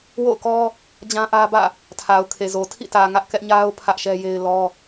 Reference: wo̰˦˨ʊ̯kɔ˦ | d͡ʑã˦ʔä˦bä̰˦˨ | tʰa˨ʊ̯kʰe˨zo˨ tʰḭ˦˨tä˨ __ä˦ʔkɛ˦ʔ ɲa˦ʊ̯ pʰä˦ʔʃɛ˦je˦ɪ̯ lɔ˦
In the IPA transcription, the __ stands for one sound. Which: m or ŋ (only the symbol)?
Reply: ŋ